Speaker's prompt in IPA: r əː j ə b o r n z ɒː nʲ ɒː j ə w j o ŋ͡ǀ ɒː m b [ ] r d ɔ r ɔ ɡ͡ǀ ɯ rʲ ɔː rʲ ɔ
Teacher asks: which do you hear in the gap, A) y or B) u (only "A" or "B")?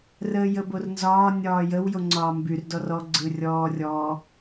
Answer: A